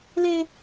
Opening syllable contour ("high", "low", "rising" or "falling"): high